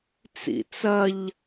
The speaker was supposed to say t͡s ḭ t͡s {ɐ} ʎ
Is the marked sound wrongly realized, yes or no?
no